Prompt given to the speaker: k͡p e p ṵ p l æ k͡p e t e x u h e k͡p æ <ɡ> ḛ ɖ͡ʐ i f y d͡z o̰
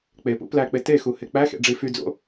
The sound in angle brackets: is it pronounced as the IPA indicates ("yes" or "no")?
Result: no